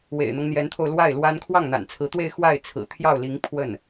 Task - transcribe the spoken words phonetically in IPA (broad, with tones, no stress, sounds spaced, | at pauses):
w ḛ˨˩ ɪ̯ n̪ ɤ˦ ŋ n̪ j ɛ˧˥ n t̪ʰ o˧ ʊ̯ l w a˥˩ ɪ̯ l w a˥ n kʰ w ɑ˥˩ ŋ n̪ a̰˨˩ n t͡sʰ ɹ̩˧˥ t̪ w e˥˧ ɪ̯ x w a˥˩ ɪ̯ t͡sʰ ɹ̩˨˩ t̪ʰ j ɑ˥˩ ʊ̯ l i˧˥ ŋ pʰ w ə˥˩ n